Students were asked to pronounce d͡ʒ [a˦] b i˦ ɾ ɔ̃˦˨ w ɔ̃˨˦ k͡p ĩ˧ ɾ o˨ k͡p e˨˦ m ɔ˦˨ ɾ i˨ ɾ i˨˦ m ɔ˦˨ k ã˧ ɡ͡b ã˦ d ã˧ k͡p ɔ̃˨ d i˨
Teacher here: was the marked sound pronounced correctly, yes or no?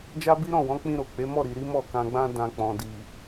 yes